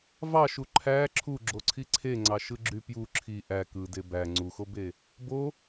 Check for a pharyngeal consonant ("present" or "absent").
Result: absent